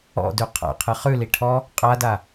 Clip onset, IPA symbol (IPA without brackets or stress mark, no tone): ɔ̰